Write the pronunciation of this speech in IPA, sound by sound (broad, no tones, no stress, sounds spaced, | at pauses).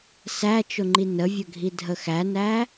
s æ t͡ʃ ʊ ŋ͡ǃ i n ə vʲ ə ɡʱ i dʱ ə x æ n æ